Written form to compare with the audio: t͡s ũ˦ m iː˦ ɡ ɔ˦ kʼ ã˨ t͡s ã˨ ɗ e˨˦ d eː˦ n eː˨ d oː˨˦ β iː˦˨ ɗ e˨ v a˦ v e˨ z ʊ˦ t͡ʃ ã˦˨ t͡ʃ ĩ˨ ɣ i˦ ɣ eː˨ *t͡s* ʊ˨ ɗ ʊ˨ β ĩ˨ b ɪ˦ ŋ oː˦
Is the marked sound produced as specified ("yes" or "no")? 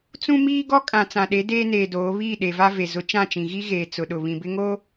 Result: yes